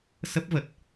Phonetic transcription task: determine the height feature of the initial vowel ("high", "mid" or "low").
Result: mid